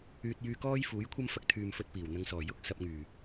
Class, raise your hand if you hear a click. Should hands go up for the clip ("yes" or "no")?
no